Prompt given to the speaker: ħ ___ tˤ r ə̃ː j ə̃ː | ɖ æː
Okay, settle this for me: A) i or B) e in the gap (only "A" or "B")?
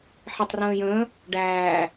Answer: B